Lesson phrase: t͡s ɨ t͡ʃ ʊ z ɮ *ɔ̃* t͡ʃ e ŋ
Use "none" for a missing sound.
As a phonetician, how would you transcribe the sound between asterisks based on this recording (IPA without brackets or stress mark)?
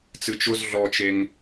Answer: ɔ